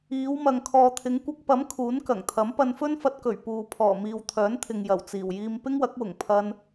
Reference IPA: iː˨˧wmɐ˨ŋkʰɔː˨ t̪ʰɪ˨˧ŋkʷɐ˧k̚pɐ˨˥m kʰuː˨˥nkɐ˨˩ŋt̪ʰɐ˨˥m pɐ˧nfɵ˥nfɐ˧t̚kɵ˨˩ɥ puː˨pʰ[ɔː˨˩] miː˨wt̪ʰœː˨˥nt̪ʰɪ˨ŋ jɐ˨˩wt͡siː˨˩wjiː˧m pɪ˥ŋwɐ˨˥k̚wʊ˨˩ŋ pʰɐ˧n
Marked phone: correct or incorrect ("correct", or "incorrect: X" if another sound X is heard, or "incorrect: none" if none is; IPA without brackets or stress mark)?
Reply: correct